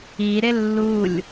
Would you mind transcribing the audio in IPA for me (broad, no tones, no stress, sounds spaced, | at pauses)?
i ɾ ɪ lː u lʲ